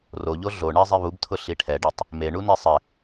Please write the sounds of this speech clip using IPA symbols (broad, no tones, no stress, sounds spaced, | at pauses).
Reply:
r o ʎ o ɮ o ɳ ɛ zˤ e β u b tʰ ʊ ɬ i ʈʰ ɛ ɖ i tˤ | m e ɳ u n e sˤ ɪ